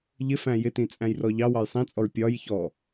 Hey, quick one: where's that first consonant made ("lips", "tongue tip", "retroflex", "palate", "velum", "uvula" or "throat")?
palate